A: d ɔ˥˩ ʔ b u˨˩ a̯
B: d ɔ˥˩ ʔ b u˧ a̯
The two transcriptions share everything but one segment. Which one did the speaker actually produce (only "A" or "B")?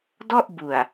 A